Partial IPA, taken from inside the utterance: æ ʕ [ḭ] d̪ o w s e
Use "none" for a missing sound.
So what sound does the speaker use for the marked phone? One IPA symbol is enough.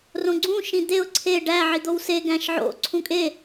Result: i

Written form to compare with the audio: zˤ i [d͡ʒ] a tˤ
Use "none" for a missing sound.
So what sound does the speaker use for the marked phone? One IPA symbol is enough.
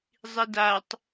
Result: d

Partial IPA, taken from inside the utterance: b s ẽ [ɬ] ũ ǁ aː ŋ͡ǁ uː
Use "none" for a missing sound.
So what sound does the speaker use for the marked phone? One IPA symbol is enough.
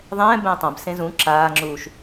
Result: z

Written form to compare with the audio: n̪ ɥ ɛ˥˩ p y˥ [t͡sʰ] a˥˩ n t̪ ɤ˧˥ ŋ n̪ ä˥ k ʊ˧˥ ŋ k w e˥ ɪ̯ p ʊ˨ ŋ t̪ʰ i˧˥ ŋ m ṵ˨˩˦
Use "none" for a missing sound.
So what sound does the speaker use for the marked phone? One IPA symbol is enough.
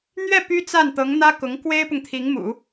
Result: t͡s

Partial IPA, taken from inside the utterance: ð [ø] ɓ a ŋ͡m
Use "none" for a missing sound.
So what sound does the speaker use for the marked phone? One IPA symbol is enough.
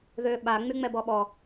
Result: ø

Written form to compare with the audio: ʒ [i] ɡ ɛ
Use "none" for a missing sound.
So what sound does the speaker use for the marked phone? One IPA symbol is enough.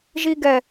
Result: i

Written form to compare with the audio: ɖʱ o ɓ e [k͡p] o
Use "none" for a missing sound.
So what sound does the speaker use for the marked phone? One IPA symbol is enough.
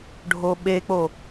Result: k͡p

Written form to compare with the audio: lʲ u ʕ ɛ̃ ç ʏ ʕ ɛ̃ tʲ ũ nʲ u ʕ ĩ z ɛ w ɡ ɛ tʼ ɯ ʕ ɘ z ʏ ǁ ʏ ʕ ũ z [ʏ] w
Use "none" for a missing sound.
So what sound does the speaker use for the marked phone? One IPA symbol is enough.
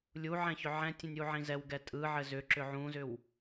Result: ʏ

